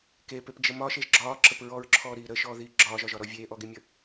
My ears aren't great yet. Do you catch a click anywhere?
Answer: yes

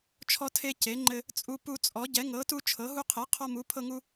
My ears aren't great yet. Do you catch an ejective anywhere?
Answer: yes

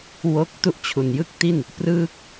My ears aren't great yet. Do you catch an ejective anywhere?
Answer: no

